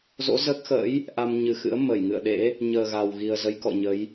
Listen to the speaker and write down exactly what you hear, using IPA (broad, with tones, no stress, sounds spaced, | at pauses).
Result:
z o̰˧˥ z əː˦˥ k̚ x ə̰ː˧˥ j | ʔ a˧ m ɲ ɨ˨˩ x ɨ̰˧˥ ə̯ m ə˧˩ j ŋ ɨ̰˧˨ ə̯ ɗ ḛ˧˥ | ɲ əː˨˩ ɣ a˨˩ w ɣ i˨˩ ə̯ z ə˨˦ j k ɔ̰˧˨ ɲ ə˨˦ j